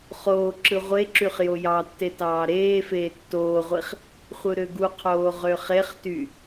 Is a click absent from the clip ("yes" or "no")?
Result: no